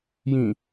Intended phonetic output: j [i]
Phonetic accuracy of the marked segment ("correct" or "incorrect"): incorrect